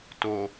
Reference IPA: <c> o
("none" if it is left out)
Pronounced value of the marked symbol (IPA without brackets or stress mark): t